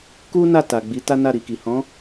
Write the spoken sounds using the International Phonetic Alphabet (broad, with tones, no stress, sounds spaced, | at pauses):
k u˦ n a˦˨ t a˨ ɡ͡b i˨˦ t a˦ n a˦˨ ɾ i˨ k i˨ h ɔ̃˨˦